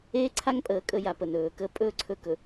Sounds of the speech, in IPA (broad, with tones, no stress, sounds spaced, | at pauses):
eː˦ ǀʰ a˦ ŋ pʼ əː˨ kʼ ə˦ j a˨ p ə˨ n ɵː˨ k ə˦ pʼ ɵː˦ ǀʰ ɵ˦ k ɵ˨